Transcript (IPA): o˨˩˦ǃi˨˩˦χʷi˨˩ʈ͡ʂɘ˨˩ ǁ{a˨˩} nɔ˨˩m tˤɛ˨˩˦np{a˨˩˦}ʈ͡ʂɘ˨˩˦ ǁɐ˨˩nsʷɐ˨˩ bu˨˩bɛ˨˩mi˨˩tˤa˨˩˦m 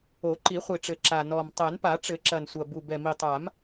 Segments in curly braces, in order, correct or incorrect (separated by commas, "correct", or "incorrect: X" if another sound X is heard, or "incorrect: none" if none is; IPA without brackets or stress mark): correct, correct